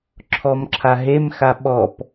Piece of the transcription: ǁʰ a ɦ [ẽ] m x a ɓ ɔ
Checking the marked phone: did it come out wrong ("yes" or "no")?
yes